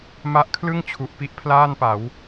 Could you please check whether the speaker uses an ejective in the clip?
no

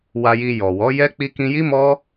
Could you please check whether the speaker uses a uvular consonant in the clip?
no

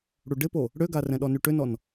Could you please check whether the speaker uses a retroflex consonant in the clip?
yes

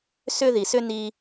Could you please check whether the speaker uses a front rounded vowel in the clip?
yes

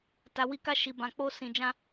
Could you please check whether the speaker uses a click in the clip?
no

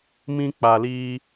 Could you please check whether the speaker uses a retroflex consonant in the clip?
no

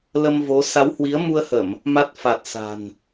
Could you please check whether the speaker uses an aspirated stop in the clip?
no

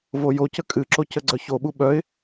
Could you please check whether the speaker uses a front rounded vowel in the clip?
yes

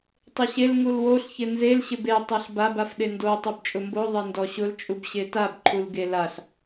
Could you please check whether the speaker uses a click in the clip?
yes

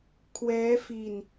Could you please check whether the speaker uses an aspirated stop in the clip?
yes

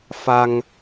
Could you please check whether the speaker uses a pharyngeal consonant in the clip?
no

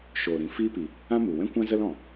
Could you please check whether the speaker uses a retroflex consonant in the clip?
no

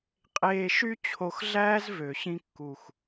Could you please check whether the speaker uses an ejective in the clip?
yes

